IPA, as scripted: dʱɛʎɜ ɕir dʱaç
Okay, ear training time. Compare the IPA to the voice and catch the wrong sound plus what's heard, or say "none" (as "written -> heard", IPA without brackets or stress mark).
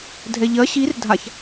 none